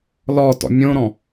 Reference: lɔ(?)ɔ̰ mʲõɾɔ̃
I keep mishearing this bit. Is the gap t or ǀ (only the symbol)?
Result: t